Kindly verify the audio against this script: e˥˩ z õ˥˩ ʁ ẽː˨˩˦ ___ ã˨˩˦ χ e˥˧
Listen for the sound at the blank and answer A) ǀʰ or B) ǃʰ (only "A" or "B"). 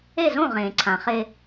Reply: A